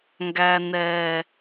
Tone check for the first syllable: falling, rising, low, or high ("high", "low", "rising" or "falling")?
low